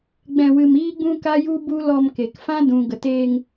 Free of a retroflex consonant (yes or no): yes